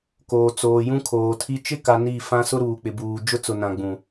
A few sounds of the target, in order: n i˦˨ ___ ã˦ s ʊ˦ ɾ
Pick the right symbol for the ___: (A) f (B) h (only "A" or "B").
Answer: A